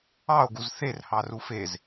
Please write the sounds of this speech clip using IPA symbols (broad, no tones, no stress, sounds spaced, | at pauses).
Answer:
ɑ o̯ ɡ u z θ e r h ɑ r u f e z